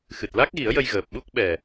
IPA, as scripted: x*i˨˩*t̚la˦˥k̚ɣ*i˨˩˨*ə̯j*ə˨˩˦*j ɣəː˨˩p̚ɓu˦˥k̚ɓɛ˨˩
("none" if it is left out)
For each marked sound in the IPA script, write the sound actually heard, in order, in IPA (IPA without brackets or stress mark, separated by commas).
ɨ˨˩, i˨˩˦, ə˧